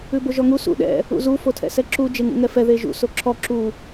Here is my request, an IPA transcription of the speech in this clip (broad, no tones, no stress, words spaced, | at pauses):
ʉboʒɔŋu sṵ ɗɛ̰ | ṵzu fotʰɛ̰sɛǁu d͡ʒeŋṵŋɛfɛ ðeʒṵ soǁʰɔ ǁu